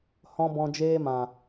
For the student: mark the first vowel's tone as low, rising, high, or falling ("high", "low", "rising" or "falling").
low